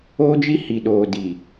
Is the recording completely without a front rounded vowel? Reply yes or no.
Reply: yes